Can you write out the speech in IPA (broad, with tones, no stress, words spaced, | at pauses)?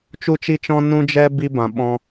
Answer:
t͡ʃu˦t͡ʃi˦t͡ʃɔ̃˦ nũ˦d͡ʒɛ˦ bi˧bã˨ ɓɔ̃˧